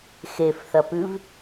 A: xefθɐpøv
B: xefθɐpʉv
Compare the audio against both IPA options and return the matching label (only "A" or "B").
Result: B